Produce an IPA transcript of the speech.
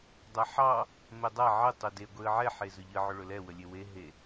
dˤ a ħ ɑ | m ɛ dˤ a ʕ ə tˤ ɵ d e ɡʷ e ə̯ ʕ ɛ ħ e z ɵ ʎ ə ʕ ɵ ɭ ɵ l ɛ w ə lʲ e w e ɦ e

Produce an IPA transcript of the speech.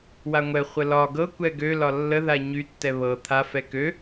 w a ŋʷ ɛ χʷ ə l ɒ ɡ ɤ kʷ ɛ ɡ ø l ɒ lː ə ð a ɲ y tː ɛ β ɤ t̪ʰ a f ɛ k ø

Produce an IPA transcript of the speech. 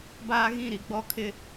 b aː˦ ɣ ĩ˦˨ ɾ i˨ ɡ͡b ɔ˦ kʰ ɪ˦

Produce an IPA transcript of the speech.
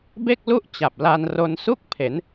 b e˥˩ k̚ l u˥˩ ʔ t͡ɕ a˨˩ p̚ l a˧ n r o˧ n s u˥˩ k̚ pʰ e˩˦ n

